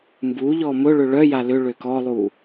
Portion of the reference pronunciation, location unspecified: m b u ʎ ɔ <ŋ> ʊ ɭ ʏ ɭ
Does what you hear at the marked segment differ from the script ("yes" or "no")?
yes